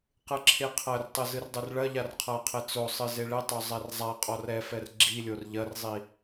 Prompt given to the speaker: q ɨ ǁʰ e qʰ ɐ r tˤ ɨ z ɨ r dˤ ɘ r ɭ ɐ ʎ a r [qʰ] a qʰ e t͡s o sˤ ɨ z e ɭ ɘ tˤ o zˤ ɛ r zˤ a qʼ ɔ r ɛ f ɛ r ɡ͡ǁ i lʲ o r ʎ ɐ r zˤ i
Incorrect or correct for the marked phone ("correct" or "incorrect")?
correct